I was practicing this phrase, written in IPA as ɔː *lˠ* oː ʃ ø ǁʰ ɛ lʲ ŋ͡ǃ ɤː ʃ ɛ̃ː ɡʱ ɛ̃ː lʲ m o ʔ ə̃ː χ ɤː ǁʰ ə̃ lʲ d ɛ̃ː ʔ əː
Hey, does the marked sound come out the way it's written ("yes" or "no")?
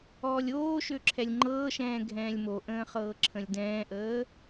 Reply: no